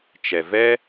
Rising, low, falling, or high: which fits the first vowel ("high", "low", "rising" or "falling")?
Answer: low